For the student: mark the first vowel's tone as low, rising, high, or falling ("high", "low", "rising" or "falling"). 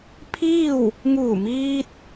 falling